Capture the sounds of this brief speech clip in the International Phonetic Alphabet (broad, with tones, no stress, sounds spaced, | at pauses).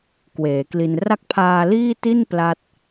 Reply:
k w eː˩˦ k l i˧ n r a˦˥ k̚ pʰ aː˧ l iː˥˩ t i˥˩ n p l a˦˥ t̚